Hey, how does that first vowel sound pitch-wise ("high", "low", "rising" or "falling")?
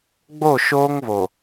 falling